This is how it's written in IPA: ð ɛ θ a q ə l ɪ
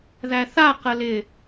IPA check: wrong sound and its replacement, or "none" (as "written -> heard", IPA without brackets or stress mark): ɛ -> æ